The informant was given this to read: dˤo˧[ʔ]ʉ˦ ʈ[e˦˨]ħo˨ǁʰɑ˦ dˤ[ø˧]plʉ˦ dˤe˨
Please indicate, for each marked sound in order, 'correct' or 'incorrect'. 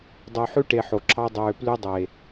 incorrect: ħ, incorrect: e˧, incorrect: øː˧

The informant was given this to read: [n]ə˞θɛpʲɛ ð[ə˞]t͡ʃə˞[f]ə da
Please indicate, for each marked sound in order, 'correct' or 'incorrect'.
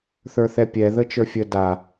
incorrect: θ, incorrect: ə, incorrect: fʲ

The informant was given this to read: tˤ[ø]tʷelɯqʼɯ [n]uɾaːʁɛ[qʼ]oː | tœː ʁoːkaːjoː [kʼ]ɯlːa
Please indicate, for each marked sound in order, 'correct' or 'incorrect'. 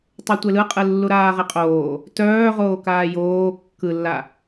correct, incorrect: lː, correct, incorrect: kː

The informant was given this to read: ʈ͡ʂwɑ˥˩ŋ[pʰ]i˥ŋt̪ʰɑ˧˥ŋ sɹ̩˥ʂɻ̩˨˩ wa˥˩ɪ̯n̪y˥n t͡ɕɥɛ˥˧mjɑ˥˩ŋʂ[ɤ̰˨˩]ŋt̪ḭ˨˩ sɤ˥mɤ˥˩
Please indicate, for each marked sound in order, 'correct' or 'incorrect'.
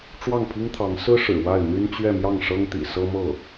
correct, incorrect: ɤ˥

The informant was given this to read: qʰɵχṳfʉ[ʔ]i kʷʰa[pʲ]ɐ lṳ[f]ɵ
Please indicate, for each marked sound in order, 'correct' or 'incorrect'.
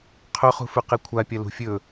incorrect: q, correct, incorrect: fʲ

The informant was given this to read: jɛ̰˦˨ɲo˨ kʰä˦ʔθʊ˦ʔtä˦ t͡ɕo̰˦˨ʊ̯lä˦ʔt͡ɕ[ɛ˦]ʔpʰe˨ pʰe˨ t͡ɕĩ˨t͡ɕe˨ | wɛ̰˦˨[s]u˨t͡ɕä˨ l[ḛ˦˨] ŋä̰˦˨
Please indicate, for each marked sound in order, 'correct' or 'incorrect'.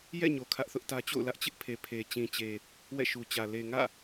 incorrect: ɪ˦, incorrect: ʃ, incorrect: e˨

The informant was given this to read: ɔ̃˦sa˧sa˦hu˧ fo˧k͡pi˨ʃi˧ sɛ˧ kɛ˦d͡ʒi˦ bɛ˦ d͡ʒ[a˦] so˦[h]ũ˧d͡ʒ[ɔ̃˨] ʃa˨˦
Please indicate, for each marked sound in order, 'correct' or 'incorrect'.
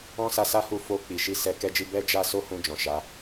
correct, correct, correct

